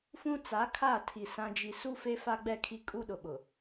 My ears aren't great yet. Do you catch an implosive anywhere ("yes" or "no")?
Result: yes